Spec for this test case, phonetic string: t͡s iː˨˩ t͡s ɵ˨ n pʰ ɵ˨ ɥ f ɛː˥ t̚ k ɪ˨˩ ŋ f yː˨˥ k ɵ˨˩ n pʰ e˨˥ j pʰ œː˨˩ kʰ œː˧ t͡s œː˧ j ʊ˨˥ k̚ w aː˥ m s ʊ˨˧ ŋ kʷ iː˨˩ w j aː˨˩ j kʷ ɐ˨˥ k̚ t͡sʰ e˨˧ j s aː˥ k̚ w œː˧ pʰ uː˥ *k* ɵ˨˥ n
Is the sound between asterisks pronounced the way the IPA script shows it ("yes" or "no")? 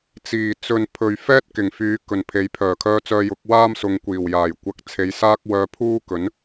yes